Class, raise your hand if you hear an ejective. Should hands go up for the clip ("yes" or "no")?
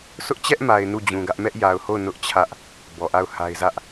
no